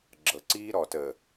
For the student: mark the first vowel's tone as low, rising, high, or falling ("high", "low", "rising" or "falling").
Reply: low